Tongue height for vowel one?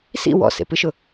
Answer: high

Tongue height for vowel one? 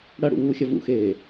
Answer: low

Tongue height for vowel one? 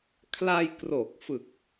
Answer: low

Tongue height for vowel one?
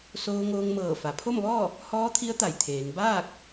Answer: mid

